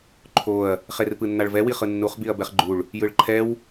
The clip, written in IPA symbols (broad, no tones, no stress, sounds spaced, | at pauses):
ǃʰ o ɐ̯ | χ e r p ɯ nː a ɭ v ɛ w i χ ɯ nː u χ b i ɐ̯ b ɛ χ ɡ͡ǃ u ɭ | j ɯ ɭ ǃʰ ɛ w